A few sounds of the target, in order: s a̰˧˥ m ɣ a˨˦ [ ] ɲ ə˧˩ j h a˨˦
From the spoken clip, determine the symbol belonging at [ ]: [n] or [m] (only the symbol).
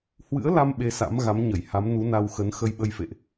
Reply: m